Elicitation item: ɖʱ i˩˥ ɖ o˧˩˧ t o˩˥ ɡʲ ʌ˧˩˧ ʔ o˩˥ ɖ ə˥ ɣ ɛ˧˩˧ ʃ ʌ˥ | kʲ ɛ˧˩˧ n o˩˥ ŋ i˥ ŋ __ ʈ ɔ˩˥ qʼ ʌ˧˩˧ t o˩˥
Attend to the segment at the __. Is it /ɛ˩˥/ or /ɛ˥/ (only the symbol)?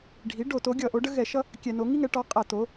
ɛ˩˥